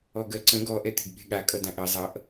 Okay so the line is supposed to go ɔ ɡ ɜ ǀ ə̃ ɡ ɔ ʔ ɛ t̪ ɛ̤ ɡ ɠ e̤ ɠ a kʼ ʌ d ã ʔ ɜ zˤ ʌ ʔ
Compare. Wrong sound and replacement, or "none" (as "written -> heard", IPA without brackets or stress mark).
ɛ̤ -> e̤